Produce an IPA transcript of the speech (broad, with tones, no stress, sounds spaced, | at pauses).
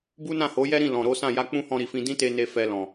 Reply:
b u˦ n ã˦˨ h o˨˦ j ɛ˦ ɾ ĩ˦˨ l ɔ̃˨ ɾ o˨˦ s ã˦˨ j a˧ k͡p ũ˦ h ɔ̃˧ ɾ i˨ f ĩ˧ d ĩ˦ t e˧ n e˧ f ɛ˧ l ɔ̃˨